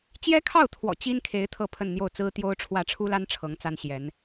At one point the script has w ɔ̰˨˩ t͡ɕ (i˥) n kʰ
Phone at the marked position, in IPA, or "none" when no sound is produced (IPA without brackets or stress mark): i˥